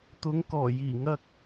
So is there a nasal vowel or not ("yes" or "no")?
no